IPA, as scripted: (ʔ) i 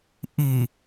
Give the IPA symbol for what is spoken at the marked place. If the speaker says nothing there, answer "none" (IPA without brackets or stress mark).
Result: ʔ